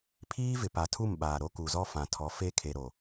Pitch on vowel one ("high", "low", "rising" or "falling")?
high